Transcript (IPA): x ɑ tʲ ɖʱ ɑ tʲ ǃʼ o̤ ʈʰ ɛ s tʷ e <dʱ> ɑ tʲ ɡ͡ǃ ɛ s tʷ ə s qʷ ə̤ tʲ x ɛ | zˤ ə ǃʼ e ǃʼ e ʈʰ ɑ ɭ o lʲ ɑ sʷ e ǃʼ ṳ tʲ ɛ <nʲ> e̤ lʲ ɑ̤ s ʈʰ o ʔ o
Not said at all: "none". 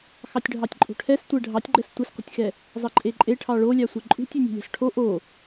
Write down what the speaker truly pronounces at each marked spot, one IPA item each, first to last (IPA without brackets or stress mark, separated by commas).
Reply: ɖʱ, nʲ